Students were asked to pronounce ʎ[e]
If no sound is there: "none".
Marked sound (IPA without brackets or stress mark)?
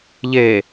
e